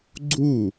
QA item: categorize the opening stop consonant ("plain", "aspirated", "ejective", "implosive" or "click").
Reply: click